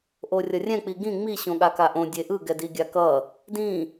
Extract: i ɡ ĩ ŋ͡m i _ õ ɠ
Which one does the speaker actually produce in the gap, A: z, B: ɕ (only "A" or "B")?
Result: B